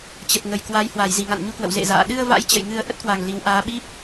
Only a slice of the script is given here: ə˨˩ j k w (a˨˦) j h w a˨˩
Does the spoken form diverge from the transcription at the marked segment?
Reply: no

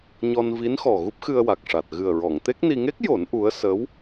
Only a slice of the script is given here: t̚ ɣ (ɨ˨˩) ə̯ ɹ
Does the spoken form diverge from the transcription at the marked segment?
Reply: no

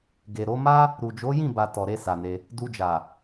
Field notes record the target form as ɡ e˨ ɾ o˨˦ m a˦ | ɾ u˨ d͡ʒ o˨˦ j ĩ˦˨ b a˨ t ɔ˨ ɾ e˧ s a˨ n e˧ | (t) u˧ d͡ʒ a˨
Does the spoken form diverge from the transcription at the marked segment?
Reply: yes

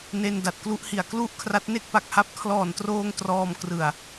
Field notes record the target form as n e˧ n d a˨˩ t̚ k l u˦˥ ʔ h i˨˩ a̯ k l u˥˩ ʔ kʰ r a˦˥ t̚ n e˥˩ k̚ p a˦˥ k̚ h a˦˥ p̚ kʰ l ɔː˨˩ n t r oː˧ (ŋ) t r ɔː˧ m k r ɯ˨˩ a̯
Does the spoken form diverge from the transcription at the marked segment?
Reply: no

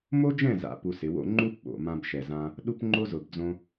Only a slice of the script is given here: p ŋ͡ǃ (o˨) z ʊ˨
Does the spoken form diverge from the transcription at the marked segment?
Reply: yes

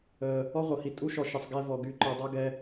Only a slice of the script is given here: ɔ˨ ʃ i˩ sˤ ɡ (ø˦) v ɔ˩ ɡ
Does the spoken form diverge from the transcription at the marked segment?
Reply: yes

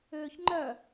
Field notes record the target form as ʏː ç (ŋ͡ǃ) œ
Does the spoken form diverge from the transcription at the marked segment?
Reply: no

